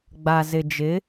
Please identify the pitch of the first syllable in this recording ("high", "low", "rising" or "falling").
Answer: low